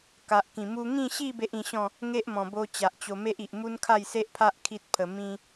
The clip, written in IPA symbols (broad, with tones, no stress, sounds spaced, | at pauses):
k a˨ ʔ k ĩ˨˩ m u˧ ŋ ĩ˥˧ ɕ i˥˧ b e˦ ʔ ĩ˧ ɕ ɔ̃˥˧ | ŋ e˦ ʔ m ɔ̃˨˩ b o˧ t͡ɕ a˨ ʔ t͡ɕ o˧ m e˦ ʔ i˨ ʔ m u˦ n kʰ a˥˧ j s e˦ ʔ pʰ a˦ ʔ kʰ i˦ t̚ pʰ ə˧ m ĩ˦